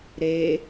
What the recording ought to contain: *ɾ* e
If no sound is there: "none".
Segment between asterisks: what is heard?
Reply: ɾ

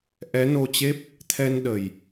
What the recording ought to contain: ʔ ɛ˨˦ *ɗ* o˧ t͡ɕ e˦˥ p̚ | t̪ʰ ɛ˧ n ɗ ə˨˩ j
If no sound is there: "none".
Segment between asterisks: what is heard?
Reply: n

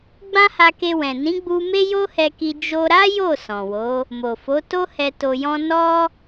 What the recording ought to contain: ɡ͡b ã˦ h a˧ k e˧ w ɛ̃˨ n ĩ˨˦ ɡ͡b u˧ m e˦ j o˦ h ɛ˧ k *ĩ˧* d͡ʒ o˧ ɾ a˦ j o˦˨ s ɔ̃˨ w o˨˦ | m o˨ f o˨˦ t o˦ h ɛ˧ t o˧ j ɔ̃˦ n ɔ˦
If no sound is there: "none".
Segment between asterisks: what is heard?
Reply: i˧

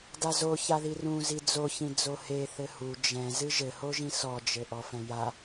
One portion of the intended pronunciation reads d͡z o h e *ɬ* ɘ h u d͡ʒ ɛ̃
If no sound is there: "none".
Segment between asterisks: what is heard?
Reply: θ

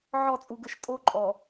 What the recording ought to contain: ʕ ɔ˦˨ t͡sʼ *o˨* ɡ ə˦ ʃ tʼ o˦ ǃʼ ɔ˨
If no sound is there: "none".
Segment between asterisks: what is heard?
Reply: u˨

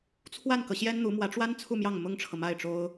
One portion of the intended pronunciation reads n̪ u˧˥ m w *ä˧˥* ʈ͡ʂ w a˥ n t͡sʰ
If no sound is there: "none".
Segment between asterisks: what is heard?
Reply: ä˧˥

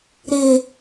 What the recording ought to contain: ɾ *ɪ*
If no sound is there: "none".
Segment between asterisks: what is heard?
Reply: ɪ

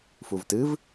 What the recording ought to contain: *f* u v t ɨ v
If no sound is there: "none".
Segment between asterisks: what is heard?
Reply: f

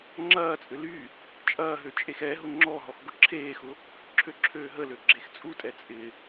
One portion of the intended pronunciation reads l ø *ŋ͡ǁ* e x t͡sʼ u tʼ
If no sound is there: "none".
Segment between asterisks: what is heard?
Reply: ɡ͡ǁ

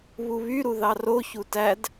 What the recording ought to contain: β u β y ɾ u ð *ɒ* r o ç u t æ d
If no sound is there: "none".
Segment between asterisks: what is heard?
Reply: ɑ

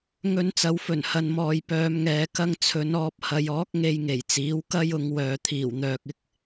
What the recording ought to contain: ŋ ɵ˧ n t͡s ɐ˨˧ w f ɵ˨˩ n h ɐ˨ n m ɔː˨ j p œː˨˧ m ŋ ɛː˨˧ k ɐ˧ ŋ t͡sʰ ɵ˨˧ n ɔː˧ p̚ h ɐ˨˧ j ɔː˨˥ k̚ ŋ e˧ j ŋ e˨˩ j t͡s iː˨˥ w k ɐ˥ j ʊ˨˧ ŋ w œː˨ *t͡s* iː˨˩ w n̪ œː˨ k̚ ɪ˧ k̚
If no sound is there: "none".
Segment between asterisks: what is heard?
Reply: t̪ʰ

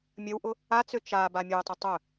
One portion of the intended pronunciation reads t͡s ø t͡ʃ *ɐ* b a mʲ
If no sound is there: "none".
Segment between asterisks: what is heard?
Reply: a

